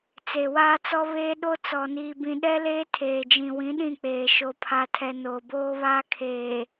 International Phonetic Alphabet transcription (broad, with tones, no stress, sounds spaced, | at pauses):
t͡s e˨ w aː˦ t͡s ɔ˦ β eː˦ ɗ o˦ t͡s ɔ˨ n iː˨ b ĩ˨ ɗ ɛ˦ l eː˦ tʰ eː˨ d͡ʒ ĩ˨ w ĩ˨˦ ɗ ĩ˦˨ k͡p eː˨ ʃ o˨ pʰ a˨ tʰ ɛ˨ n oː˨ b oː˦ β aː˦ kʰ eː˨